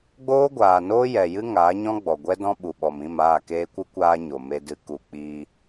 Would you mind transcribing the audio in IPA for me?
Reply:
ɡ͡b oː˦ ɡʷ aː˨ n oː˦ j ɛ˨ j ɨ˦ ŋ aː˨˦ ɲ ɔ̃˦ ɡ͡b ɔ˨ ɡʷ ɛ˦ d ɔ̃˦ ɓ u˨ ɓ ɔ˨ m ĩ˦˨ m aː˦˨ k eː˧ kʷ ɨ˦ kʷ aː˧ ɲ o˨ m e˧ d ɨ˧ k u˨ k͡p i˧

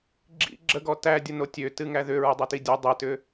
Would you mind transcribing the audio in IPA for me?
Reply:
ɡ͡ǁ ḭ ɡ͡ǁ ə ɡ ɔ t æ dʲ ə n o tʲ ø t ɨ ŋ æ ð ʏ ɹ ʏ dˤ ə t i dʲ ə dˤ ɨ t ʏ

